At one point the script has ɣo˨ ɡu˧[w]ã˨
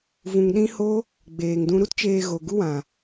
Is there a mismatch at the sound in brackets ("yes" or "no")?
no